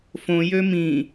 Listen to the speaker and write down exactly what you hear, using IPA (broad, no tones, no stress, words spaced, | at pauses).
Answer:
fõ jømĩ